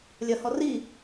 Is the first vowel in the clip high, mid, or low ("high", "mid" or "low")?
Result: low